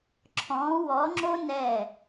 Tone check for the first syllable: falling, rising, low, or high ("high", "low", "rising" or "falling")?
rising